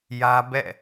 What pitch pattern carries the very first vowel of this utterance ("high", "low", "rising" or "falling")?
high